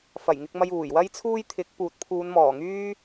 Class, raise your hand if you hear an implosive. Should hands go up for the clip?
no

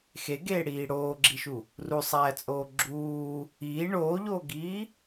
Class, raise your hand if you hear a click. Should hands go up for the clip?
yes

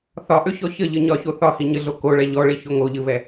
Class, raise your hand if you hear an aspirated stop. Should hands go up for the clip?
no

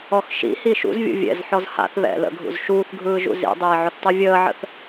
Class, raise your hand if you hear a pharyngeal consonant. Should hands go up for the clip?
yes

